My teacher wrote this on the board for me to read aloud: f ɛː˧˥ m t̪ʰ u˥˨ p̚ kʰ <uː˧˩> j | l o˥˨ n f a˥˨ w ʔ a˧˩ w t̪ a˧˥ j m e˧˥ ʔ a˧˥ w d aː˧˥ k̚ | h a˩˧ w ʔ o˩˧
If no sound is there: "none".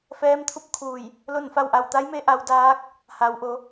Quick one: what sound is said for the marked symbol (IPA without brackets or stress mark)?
uː˧˩